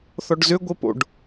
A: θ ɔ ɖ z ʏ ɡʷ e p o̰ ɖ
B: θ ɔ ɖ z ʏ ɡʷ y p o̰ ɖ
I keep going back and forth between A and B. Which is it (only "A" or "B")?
A